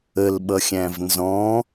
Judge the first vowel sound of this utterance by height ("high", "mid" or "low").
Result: mid